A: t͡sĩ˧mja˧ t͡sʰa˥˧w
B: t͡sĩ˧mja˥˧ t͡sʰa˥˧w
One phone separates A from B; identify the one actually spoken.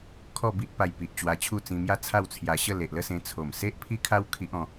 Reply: B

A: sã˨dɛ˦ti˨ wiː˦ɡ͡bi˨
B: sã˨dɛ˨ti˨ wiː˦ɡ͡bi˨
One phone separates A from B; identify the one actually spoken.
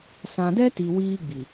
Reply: A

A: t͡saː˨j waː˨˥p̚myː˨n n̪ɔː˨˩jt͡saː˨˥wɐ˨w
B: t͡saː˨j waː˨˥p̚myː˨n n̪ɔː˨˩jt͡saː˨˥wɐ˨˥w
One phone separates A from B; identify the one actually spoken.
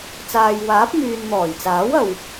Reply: A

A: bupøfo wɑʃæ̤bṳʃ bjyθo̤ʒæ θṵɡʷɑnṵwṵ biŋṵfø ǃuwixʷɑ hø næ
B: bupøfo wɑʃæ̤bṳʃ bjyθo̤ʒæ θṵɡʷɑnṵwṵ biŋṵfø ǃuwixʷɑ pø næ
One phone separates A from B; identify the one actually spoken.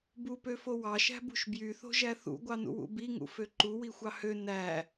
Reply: A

